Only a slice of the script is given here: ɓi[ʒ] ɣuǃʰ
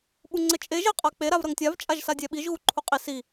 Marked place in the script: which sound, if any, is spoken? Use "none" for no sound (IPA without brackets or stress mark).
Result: ʒ